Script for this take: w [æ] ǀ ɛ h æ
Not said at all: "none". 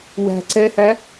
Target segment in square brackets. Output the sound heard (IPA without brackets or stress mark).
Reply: æ̤